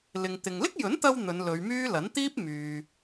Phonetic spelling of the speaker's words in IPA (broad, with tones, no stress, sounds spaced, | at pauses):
l ɪ˨ ŋ t̪ ɪ˨ ŋ l ɪ˥ k̚ j ɵ˨˥ n t̪ ɐ˧ w n̪ ɵ˨˧ n l ɵ˨˧ ɥ m yː˥ l ɐ˨˥ n t̪ iː˥ p̚ m yː˨